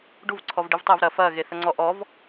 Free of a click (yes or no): no